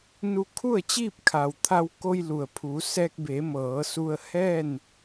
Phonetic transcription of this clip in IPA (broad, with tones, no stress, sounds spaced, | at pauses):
n u˧ kʰ u˥˨ ə̯ t͡ɕ iː˥˨ p̚ kʰ a˩ w t̪ʰ a˧ w k o˧ j l u˩ ə̯ pʰ u˩˧ s ɛː˧ k̚ b e˩˧ m ɤː˩˧ s u˧ ə̯ h ɛː˥˨ n